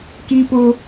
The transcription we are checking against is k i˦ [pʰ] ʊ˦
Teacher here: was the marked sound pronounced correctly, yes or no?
no